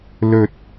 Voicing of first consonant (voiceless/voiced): voiced